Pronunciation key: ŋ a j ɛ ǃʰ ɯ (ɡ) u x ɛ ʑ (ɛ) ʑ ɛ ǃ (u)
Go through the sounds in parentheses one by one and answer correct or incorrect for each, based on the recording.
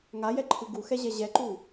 correct, correct, correct

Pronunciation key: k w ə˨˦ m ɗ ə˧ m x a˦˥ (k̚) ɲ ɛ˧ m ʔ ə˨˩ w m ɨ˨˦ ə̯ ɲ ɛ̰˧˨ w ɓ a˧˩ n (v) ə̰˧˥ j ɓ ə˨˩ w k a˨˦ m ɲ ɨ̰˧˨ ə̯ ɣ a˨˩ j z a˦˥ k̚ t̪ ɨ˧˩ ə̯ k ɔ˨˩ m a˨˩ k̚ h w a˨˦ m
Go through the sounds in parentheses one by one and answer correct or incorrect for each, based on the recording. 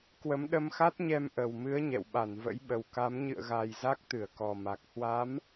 incorrect: t̚, correct

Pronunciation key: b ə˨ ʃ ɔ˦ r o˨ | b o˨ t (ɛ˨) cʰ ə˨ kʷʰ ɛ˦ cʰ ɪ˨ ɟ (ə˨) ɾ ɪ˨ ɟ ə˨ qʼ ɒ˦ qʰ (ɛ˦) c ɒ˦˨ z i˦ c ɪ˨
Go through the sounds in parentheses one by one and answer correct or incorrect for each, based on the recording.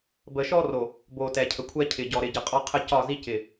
correct, incorrect: ɔ˨, incorrect: ə˦

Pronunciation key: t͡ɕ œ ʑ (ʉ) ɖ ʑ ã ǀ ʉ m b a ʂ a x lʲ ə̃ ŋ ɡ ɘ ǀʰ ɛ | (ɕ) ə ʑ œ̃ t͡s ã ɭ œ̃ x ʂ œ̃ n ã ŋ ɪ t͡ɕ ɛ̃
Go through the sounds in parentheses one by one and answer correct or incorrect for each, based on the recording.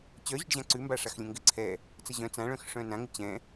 correct, incorrect: t͡s

